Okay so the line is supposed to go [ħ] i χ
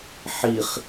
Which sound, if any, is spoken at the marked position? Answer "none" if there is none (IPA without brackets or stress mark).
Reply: ħ